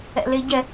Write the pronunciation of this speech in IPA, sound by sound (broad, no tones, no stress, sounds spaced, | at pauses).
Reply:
ɛ̰ l e ɟ ɛ